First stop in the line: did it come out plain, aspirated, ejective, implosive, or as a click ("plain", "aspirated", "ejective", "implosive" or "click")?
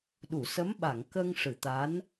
implosive